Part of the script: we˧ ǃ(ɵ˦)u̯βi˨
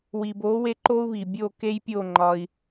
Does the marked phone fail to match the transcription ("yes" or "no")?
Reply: yes